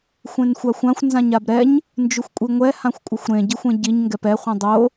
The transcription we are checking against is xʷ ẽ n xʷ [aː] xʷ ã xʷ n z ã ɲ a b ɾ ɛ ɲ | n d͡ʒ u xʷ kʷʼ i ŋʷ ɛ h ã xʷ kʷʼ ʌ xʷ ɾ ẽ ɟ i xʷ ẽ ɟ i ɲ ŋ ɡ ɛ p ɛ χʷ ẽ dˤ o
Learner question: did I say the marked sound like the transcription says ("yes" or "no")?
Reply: no